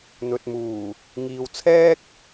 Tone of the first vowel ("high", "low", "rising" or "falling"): low